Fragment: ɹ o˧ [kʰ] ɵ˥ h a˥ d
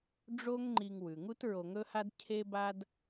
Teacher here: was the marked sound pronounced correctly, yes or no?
no